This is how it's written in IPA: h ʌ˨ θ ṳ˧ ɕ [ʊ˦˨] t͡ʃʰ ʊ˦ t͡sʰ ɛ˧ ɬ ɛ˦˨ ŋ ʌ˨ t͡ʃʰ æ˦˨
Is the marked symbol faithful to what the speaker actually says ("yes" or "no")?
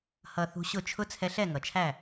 yes